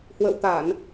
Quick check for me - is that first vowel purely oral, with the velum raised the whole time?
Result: yes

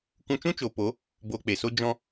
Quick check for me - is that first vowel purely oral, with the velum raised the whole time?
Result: no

